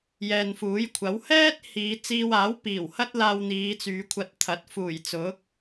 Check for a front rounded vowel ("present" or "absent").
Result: present